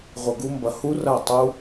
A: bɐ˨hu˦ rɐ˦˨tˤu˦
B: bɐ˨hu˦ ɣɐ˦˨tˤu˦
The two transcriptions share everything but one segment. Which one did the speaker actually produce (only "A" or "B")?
A